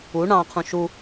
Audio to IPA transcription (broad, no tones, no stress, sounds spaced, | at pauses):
u ɳ ɑ̃ qʰ ũ ʃ u